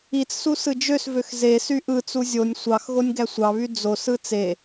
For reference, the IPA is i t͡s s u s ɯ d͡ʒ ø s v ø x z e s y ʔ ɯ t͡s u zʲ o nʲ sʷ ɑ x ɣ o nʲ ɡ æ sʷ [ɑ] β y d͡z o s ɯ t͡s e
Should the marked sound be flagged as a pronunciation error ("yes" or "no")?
no